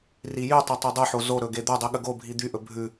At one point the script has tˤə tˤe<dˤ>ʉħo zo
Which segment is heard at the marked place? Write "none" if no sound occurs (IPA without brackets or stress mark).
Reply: dˤ